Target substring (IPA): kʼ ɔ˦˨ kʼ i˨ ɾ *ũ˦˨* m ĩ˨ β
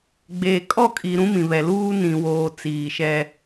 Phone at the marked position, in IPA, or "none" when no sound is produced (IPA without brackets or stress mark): ũ˦